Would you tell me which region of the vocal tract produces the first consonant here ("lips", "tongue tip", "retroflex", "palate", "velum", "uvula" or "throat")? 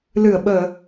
tongue tip